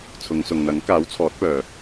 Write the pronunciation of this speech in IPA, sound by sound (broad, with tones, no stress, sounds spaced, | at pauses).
t͡sʰ ʊ˨˧ ŋ s ʊ˨ ŋ n̪ ɐ˨˥ ŋ k aː˨˥ w t͡sʰ ɔː˨˥ t̚ p œː˨